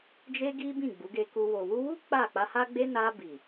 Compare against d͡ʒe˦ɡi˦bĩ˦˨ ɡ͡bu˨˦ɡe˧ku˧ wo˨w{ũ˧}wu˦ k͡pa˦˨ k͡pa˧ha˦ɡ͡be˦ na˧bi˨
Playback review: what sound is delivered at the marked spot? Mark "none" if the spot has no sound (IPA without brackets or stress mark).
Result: u˧